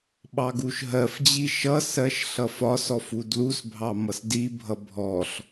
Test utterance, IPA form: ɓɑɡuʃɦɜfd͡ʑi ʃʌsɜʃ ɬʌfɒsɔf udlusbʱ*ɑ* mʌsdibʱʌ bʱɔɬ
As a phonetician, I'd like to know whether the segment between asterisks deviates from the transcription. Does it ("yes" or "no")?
no